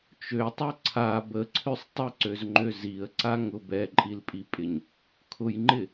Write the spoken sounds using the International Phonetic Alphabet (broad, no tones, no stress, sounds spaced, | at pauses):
t͡ʃ ø tˤ ɛ ǀʰ a b ə ǀʰ ø sˤ tˤ ɪ ǀ ø z ŋ͡ǃ ø z i ə̯ ǀ a ŋ ʊ b ɛ ǃʼ i l pʼ i pʼ ɪ ɲ | kʰ ʊ j ŋ͡ǃ ɪ